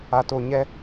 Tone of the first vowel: low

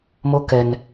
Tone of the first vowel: high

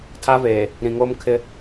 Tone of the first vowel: high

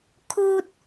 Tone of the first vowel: high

